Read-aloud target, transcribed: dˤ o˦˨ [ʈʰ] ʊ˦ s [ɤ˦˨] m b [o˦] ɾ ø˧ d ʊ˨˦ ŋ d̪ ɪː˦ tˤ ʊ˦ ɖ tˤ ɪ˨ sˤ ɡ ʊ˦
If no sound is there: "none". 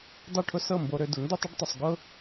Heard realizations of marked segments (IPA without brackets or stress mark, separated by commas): ʈʰ, ɤ˦˨, o˧